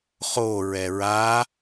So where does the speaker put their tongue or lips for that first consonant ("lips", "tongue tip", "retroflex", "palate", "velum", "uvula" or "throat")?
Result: uvula